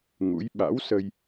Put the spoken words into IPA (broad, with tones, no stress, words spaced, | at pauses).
ŋṵ˧˥j ɓa̰˧˥wsə˧j